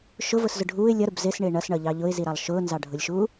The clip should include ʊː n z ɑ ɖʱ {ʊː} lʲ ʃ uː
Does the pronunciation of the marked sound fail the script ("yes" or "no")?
yes